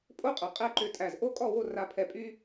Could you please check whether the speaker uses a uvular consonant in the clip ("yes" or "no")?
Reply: yes